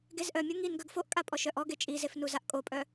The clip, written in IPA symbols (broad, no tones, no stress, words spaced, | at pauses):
ɡezʔœmʲo ŋin ɡœɡfoʔkʼa pʼɔʃœʔɔɡe t͡ʃʼizef nuzaʔkʼopʼœ